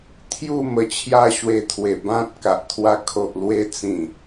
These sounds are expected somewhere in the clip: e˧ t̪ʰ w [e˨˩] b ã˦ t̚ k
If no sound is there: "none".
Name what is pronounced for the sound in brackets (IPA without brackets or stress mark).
e˨˩